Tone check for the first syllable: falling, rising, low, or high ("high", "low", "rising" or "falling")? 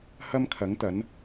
high